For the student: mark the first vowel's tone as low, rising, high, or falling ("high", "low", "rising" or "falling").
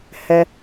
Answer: high